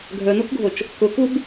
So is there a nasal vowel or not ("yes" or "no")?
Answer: no